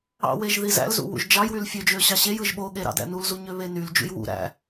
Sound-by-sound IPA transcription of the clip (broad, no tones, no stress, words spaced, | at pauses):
ɑ̰weʒ ðizæ̰lzṵ wṵʒd͡ʒɑjwyl fʲød͡ʒø ɕɑɕejɯʒ ɓo ɠeɾɑ̰dæ̰ nulzu ɲøβenyld͡ʒṵj wṵ ɾæ̰